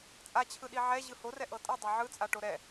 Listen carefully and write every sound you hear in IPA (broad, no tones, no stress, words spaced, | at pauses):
t͡sʼat͡ɕʰɯɗi ʕɛʑɯ horɛʔɤ tʼɯdˤo ʕɯt͡sʼaʈo ɾɛ